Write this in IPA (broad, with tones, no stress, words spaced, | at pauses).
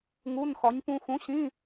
ŋu˧˥˧nxɒ˨˥ɲ pũ˧xũ˨˥ɕĩ˧˥˧